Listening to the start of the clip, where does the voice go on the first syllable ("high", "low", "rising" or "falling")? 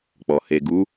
low